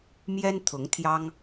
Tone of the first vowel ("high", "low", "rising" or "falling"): high